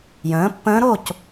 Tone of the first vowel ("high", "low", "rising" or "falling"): rising